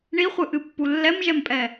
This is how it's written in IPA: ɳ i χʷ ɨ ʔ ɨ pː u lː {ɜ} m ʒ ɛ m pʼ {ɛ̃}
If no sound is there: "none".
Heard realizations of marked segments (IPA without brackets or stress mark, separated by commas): ɛ, ɛ